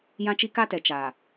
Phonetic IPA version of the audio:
j ã˦ t͡ʃ i˦ k a˦ t ɛ˨ t͡ʃ a˨

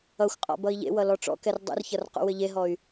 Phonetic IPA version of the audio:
ʌ xʷ qʼ ɔ̰ b ʌ i̯ ʎ ḛ w ʌ l ɔ ʈ͡ʂ ɔ̰ k ɛ r dˤ ṵ r ç ʌ r q ṵ w ɘ ʎ e ɦ ɔ y̯

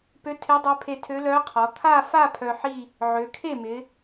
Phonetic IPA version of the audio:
p ø˧˥ tʰ ɪ˧˥ dˤ ø˧˥ pʰ e˧ tʰ ø˧˥ l œ˧˥ qʰ ɔ˩˧ t̪ʰ a˥˧ f a˥˧ pʰ œ˧ ħ i˥˧ | ʕ ø˩˧ kʰ e˥˩ m ɪ˩˧

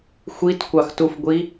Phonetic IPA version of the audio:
xʷ i t kʷ ɑ x t u f ɡʷ i

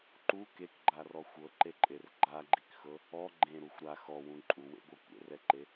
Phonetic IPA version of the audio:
ǃ u k e k ɡ͡ǃ a r ɔ xʷ ɤ ǃ e ǃʼ e r ɡ͡ǃ a ɡ͡ǃ i k x ɤ | ɔ ɡ͡ǃ ẽ ɾ u xʷ ɾ a x ɔ w ũ ǃʼ u w ḛ ɡʷ ɤ kʷ ḛ r ɛ ǃ e

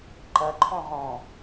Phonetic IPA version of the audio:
ǃ ɐ ǃʰ ɔ̃ ʁ ɔ̃

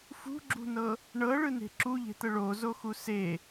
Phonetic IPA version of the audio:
f ṳ ɡ͡ǁ ṳ n ɤ | ɳ ɤ ɭ ɯ n e̤ ǁ u ʎ e̤ t̪ ə ɭ o z o x u s e

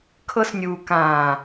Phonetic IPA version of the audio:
kʰ ɤ˧ s nʲ uː˨ k ãː˨

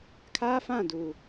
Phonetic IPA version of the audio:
kʰ aː˦ f ã˦˨ d uː˨

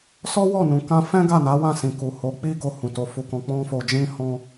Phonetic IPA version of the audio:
s ɔ˦ w ɔ˦˨ n ũ˨ k ã˧ f ɛ̃˦ ɡ a˦˨ n a˨˦ w ã˦˨ s ĩ˨ k u˨ h o˨˦ k͡p i˦ ɡ o˧ h ũ˨ t o˨˦ f u˧ k ɔ̃˧ k͡p ɔ̃˦ f o˧ d͡ʒ ĩ˦ h ɔ̃˦

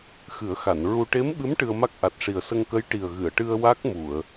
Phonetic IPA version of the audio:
x ɨ˨˩˦ ə̯ x a˨˩˨ n ɹ u˧ ʈ e˧˥ m ɓ ɨ˧˥ m ʈ ɨ˧ ə̯ m a˦˥ k̚ ʔ a˨˩ t̚ ʂ i˨˩ ə̯ s ə˧ ŋ k ə˧˥ j ʈ i˨˩ ə̯ ɣ ɨ˨˩˨ ə̯ ʈ ɨ˧ ə̯ w a˦˥ k̚ m u˨˩˨ ə̯

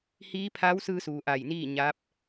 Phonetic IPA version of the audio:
h iː˧˥ pʰ a˧˥ w s ɯː˧ s uː˩ ʔ a˧˩ j n iː˥˨ ɲ a˧˥ p̚

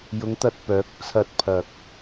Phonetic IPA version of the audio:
j ʊ˨˧ ŋ t̪ ɐ˨ t̚ p œː˨˥ k̚ t͡sʰ ɐ˧ t̚ pʰ ɐ˨ k̚

